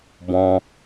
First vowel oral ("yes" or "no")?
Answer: no